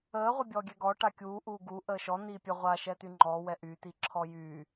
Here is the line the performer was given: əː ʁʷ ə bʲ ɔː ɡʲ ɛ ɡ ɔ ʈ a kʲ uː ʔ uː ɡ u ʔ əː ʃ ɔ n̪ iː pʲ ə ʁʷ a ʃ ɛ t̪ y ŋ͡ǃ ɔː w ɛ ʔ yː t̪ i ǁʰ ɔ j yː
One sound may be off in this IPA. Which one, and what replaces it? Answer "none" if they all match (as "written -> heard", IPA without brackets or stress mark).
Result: none